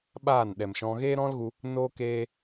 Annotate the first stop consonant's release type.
implosive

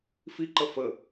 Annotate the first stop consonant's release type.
click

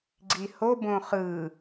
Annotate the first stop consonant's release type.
click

